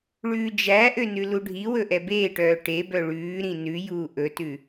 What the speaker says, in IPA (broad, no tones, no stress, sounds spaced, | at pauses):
ɭ ʉː d͡ʒ æ ʔ ø n ʉ l u ɖʱ i w ɵ ʔ ɛ b eː ʈ œː ʈ e b œ ɭ ʉː ɾ ĩ n ʉ j uː ʔ ɵ t ʉ